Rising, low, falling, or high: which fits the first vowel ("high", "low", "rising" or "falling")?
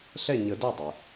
falling